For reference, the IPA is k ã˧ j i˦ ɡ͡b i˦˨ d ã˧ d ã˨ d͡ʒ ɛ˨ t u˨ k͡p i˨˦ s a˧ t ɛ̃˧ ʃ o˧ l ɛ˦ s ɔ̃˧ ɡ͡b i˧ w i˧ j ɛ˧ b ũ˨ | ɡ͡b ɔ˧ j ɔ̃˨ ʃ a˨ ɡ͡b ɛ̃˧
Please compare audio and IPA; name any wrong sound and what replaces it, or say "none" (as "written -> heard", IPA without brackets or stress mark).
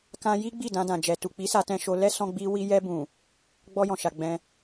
none